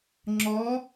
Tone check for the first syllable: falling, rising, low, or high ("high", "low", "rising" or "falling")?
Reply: rising